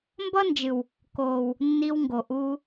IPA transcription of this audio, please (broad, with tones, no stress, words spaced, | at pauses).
mbʌ˦nd͡ʒɨ˨w | koː˨w | nːi˧wŋɡo˨ʔuː˧